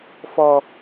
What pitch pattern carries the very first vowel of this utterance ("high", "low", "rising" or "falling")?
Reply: high